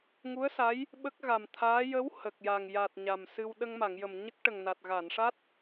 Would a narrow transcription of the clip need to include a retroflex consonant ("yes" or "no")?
yes